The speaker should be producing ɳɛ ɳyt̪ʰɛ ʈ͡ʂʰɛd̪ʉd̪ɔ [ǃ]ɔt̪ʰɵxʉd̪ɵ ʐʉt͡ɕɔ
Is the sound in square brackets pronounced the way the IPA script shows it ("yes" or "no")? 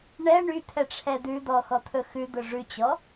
no